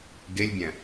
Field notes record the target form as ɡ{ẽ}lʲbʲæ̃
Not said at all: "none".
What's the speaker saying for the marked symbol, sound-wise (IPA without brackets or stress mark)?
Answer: e